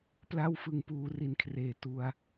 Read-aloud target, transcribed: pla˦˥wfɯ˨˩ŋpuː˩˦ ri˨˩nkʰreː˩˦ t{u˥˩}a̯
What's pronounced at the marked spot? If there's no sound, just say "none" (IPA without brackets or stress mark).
u˧